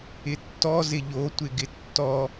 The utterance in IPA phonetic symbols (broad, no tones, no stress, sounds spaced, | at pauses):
ɪ tː ɔ z ɪ ʎ o tʷ ɪ ɡ ɪ tː ɔ